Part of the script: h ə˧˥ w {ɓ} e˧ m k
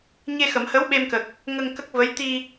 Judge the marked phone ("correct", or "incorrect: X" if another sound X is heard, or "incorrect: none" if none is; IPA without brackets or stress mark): correct